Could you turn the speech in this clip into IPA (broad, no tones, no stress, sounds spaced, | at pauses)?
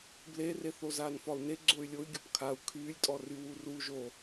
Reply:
b l e r e θ o z aː n f ɒ u̯ n e ɡ͡ǀ o y̯ lʲ o y̯ ɡʲ ɔ p kʰ a u̯ kʰ yː lʲ tʼ ɔ r y w u r u ʒ o